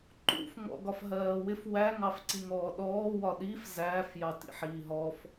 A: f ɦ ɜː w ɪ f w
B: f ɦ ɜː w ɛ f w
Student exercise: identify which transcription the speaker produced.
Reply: A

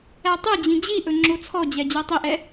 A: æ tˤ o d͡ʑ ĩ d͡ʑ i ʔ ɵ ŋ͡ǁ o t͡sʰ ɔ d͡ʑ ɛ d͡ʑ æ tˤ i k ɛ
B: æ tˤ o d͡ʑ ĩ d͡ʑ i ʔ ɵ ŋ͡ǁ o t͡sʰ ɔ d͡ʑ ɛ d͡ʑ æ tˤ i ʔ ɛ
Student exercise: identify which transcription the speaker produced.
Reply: B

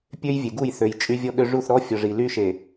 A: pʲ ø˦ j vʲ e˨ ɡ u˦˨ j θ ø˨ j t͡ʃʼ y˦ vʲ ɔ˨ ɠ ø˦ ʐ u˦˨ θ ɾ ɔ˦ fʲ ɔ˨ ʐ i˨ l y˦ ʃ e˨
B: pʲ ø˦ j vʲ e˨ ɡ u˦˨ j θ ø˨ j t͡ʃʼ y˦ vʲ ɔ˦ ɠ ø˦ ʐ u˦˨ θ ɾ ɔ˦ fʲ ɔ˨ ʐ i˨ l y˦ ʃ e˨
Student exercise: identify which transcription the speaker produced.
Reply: B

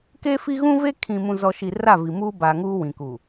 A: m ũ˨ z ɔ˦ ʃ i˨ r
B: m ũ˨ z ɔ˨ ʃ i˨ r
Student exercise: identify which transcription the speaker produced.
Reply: B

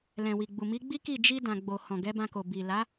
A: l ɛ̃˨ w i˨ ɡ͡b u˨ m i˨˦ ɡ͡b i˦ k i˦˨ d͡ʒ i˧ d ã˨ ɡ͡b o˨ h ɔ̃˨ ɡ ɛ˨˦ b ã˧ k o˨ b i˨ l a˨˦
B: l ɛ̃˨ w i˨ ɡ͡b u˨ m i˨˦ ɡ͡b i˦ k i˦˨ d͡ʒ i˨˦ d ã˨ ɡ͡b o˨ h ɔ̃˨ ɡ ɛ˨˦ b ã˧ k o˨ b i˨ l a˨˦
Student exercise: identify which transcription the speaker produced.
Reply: A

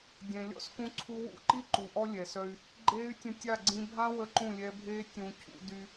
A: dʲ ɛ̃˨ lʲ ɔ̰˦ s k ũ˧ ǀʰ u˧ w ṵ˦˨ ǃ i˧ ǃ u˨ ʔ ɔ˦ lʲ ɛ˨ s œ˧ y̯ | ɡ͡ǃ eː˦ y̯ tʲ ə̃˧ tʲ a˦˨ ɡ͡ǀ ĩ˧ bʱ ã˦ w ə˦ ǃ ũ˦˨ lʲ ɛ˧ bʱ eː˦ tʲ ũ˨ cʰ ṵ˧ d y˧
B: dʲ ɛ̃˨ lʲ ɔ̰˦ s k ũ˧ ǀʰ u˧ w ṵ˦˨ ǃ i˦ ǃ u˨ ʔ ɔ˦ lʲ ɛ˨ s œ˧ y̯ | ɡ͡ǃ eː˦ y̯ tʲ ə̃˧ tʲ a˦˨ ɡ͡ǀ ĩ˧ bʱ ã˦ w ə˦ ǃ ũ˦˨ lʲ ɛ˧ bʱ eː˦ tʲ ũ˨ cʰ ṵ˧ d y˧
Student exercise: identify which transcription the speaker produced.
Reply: B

